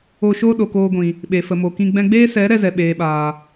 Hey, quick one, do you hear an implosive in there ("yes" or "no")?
yes